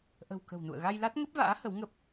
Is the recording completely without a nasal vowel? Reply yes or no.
yes